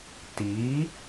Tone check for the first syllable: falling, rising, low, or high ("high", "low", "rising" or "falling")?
rising